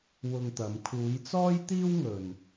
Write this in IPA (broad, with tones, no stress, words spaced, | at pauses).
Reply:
wʊ˧ŋt̪ɐ˨˧m kʰuː˨˧jt͡sɔː˥jt̪iː˥wŋɵ˨n